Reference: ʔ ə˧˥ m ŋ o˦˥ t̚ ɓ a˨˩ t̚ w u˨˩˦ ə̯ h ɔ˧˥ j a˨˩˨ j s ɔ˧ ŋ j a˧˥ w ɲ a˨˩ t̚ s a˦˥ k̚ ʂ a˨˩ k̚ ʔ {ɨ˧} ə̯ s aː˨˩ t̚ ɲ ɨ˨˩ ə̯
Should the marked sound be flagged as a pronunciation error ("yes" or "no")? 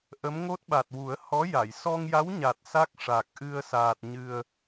no